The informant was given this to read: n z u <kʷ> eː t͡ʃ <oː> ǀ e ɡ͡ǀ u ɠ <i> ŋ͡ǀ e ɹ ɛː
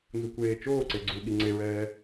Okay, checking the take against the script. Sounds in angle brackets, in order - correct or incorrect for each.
correct, correct, correct

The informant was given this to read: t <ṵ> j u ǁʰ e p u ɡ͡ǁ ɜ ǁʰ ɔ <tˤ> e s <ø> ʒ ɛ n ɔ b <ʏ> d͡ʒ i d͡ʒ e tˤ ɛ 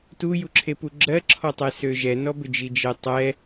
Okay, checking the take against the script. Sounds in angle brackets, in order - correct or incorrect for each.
incorrect: u, correct, correct, correct

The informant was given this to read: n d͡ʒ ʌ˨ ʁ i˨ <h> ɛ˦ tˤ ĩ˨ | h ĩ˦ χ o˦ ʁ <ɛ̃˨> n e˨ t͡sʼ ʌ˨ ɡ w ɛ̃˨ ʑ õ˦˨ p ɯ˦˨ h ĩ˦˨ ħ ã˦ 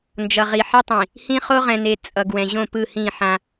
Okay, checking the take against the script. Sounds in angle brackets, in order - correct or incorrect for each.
incorrect: ħ, correct

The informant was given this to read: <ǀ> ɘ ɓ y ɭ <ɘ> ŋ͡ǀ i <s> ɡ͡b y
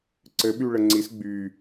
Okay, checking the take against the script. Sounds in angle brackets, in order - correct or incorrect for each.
correct, correct, correct

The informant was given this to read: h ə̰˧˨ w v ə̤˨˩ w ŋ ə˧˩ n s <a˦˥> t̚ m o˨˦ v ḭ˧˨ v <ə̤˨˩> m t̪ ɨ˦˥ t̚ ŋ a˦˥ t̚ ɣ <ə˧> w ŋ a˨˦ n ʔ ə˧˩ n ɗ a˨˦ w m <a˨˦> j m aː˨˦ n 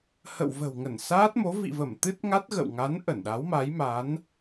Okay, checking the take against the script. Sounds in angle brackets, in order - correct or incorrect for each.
incorrect: aː˦˥, incorrect: ə˧˩, incorrect: ə̰˧˨, correct

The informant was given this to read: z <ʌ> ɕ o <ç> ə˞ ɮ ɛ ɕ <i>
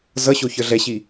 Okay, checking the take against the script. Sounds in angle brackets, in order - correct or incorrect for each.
correct, correct, correct

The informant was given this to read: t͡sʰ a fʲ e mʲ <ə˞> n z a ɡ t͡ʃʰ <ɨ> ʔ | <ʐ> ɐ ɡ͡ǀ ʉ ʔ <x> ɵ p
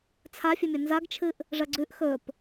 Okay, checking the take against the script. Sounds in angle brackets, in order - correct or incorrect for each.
incorrect: ɐ, correct, correct, correct

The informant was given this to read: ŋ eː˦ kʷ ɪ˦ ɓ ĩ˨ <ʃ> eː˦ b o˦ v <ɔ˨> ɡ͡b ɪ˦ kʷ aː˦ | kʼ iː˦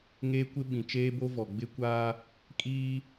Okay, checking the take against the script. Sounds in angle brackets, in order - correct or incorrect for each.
incorrect: t͡ʃ, correct

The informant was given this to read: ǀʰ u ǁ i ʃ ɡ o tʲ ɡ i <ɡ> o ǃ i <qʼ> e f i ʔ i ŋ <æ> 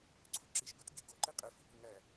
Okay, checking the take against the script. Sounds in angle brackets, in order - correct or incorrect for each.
correct, correct, correct

